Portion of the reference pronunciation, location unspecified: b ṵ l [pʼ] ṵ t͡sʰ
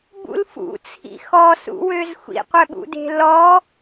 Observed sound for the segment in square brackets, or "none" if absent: f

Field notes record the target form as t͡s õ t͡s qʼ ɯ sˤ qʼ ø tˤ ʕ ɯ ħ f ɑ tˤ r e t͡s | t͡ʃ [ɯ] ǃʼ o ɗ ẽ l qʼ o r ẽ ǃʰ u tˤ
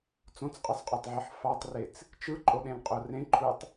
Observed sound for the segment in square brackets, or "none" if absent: ɯ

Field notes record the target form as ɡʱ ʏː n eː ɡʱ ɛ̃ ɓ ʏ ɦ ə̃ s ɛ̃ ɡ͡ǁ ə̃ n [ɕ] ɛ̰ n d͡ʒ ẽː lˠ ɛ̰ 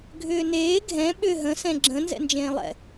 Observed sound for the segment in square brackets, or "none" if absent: z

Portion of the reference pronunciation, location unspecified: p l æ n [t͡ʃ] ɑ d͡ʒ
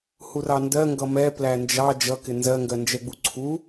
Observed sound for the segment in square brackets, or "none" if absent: d͡ʒ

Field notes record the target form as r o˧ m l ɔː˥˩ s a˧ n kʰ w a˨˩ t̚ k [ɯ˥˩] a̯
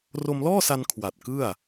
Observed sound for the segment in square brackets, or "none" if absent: ɯ˥˩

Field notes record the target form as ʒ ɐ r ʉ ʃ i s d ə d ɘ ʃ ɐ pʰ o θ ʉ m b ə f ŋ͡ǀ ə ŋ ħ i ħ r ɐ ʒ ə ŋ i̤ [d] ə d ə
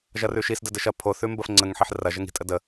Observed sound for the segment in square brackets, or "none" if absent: tʼ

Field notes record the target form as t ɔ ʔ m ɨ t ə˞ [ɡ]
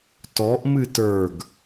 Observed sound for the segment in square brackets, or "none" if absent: ɡ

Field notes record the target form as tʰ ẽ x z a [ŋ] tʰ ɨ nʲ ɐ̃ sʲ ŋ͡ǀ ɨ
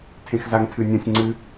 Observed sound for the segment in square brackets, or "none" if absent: ŋ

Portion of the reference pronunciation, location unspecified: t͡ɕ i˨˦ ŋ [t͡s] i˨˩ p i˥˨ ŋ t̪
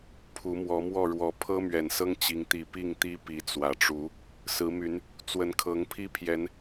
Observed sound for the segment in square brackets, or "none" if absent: t̪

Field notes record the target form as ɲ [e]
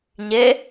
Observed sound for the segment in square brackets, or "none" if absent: e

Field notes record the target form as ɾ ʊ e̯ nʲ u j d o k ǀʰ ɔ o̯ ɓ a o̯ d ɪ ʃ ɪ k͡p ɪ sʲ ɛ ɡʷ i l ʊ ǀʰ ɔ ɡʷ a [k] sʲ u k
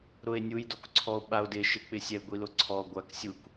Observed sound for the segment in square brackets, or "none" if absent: k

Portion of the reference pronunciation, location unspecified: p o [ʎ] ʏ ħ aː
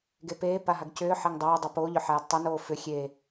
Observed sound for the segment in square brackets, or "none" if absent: ʎ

